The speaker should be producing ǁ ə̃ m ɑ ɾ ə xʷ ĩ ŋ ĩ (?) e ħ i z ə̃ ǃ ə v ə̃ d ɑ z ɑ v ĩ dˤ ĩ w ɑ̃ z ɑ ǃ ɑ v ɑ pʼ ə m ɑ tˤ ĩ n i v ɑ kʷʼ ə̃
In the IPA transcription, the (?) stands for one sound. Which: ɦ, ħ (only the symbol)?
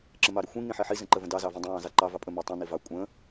ħ